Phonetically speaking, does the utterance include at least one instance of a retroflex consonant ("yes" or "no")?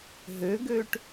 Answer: yes